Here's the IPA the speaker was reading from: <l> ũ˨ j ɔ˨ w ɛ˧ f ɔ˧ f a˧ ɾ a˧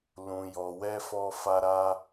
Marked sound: correct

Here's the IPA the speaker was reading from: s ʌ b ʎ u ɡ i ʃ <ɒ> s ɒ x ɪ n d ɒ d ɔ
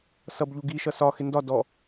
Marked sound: incorrect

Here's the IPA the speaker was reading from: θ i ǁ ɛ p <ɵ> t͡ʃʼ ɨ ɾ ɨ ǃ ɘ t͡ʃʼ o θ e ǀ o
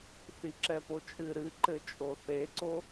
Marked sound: incorrect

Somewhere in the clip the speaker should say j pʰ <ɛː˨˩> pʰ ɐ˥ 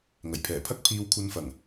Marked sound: correct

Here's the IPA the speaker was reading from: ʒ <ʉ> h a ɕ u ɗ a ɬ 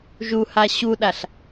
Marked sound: incorrect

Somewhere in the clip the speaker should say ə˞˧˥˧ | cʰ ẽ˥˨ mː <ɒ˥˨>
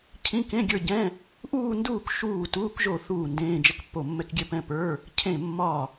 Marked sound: correct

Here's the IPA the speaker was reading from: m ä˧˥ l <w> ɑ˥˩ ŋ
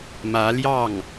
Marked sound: incorrect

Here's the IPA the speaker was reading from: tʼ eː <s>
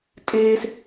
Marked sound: correct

